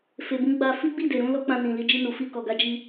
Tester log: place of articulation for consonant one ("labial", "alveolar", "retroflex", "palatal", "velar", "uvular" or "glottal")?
labial